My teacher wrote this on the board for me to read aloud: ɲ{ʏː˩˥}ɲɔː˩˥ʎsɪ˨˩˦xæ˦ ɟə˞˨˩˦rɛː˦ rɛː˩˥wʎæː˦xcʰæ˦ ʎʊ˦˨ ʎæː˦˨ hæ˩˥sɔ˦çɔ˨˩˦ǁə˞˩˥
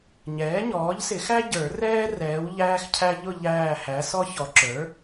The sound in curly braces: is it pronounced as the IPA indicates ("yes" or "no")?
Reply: no